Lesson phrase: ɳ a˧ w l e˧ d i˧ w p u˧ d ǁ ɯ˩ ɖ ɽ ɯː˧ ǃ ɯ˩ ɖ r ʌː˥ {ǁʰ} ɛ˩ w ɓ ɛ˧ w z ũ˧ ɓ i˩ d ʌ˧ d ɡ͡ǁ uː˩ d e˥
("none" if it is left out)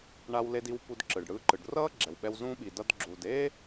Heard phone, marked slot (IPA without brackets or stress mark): ɡ͡ǁ